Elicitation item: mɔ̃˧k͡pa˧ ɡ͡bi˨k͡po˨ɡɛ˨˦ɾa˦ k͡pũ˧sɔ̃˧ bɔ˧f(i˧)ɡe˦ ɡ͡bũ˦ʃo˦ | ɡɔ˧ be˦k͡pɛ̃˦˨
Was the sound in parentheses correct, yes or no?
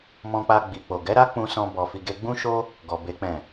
yes